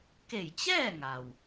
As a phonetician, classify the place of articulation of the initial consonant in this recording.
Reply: velar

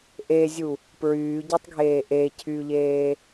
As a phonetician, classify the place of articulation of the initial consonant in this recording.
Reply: glottal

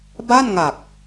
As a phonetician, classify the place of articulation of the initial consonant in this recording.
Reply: labial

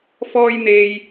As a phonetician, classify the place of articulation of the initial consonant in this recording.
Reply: labial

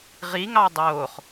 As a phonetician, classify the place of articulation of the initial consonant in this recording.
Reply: uvular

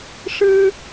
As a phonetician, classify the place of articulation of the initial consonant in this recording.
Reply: retroflex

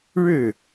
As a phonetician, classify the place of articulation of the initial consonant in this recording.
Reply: retroflex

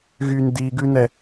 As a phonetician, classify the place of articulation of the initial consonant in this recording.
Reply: velar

